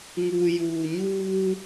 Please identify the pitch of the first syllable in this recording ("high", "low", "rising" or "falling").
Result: low